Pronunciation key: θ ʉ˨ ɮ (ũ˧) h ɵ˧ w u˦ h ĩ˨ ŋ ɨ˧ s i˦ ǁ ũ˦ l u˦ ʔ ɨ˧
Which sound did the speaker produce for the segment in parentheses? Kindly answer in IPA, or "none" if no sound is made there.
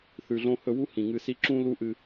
õ˧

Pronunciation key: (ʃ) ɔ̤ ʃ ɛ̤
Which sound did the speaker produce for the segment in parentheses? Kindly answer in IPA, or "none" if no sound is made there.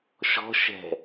ʃ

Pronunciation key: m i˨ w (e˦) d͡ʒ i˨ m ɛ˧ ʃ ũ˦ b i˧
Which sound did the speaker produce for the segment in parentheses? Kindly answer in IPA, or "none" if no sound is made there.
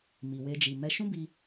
e˧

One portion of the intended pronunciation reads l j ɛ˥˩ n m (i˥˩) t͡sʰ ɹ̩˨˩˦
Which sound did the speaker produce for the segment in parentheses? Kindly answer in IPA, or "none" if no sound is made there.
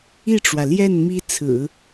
i˥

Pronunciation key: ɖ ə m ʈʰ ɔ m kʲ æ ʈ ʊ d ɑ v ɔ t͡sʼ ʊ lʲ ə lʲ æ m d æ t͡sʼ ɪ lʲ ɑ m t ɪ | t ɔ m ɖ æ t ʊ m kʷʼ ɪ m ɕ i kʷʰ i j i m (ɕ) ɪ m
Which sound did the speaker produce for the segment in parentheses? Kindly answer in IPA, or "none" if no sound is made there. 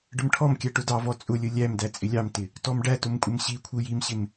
ɕ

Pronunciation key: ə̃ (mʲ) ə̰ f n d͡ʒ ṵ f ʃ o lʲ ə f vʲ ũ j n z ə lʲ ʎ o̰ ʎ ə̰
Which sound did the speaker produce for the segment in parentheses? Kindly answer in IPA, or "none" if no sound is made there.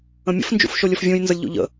mʲ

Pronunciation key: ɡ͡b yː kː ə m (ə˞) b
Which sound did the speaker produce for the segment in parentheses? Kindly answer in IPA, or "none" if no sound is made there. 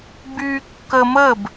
ə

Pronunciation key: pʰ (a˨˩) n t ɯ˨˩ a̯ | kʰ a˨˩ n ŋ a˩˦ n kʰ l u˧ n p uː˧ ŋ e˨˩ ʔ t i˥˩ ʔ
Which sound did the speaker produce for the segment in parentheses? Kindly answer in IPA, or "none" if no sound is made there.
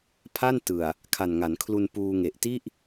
a˥˩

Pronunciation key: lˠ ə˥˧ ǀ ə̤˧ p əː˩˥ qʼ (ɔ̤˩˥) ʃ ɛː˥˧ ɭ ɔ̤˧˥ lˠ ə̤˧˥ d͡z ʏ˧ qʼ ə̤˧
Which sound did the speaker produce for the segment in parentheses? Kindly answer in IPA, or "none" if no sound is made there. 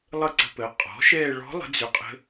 ɔ̤˩˥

